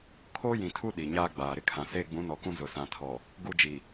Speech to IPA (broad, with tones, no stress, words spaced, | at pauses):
kʰoː˦jĩ˨tʰu˦ ɗi˨ɲaː˦ɡ͡baː˨ ɾɪ˦kʰã˨ seː˦ɡ͡bũ˨˦nɔ˨kũ˦ zʊ˨sã˨tʰɔ˨ | ɡu˦d͡ʒi˨